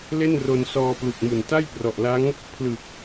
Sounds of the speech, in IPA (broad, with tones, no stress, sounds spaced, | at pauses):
l e˥˩ n r o˧ n s ɔː˧ p l u˨˩ k̚ m u˨˩ n t a˥˩ j p r ɔ˨˩ ʔ l a˦˥ ŋ | pʰ l ɯ˨˩ k̚